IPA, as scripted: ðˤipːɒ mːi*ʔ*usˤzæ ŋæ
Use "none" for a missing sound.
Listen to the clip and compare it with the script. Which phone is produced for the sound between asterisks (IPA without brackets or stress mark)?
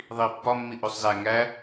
ʔ